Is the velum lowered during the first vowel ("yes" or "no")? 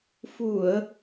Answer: no